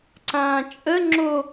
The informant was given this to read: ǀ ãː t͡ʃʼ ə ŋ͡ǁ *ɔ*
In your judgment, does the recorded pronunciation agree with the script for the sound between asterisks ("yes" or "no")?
no